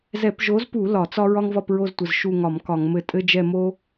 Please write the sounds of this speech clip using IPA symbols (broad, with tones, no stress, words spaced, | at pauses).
zɛ˧˩˧pʒo˨˥zpu˧˩˧ lɒ˧˩˧t͡sɒ˦ ɹɒ˦ŋvɒ˦˨pɹo˦˨ztʷə˩˧˩z ʃu˦˨ŋɒ˧˩˧m kɒ˧˩˧ŋmɘ˦˨ tʼɘ˦d͡ʒɛ˦˨mo˦